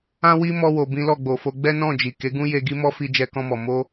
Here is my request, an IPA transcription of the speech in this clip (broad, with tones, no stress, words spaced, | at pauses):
ã˦wi˦ mɔ˧wo˨ bĩ˨˦lɔ˦˨ɡ͡bo˨fo˨˦ ɡ͡bɛ˦nɔ̃˦˨ d͡ʒi˨ke˨˦ɡũ˦je˧ ɡi˦mɔ˦ fi˧d͡ʒɛ˧kɔ̃˧mɔ˨ mo˧